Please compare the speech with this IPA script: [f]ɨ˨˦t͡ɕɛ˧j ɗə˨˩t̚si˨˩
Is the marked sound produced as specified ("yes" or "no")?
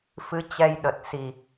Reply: yes